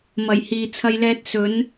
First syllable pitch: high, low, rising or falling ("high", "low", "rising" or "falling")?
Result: low